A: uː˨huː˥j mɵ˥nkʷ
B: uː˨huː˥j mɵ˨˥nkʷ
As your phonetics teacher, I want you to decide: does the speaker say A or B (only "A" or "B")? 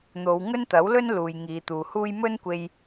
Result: A